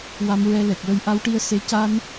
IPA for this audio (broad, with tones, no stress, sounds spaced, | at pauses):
w a˧ m ɹ ɛ˧ l ɛ˨˩ k̚ w ə˧ j ʔ a˧˥ w ʈ i˧ ə̯ s e˧˥ c a˧ n